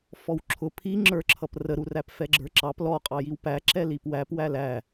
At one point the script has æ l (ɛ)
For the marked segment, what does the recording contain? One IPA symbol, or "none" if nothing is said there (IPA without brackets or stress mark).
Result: æ